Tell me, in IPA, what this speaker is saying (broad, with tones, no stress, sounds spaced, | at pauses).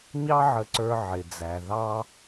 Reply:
ɲ ɑ˥ ʕ ə˧ ǀ ə˞˧ ʕ ɪ˩ d͡z æ˩ ð ɑ˧